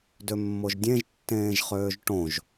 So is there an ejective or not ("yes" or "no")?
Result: no